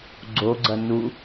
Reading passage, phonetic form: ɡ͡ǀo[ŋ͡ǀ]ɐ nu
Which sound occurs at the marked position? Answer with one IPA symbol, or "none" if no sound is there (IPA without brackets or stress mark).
ɡ͡ǀ